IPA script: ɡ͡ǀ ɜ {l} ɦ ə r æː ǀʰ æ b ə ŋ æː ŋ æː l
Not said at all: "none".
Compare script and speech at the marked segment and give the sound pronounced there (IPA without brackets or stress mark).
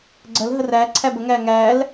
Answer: l